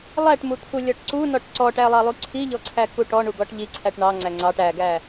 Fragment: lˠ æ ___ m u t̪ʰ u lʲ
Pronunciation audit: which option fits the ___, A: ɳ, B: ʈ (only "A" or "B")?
B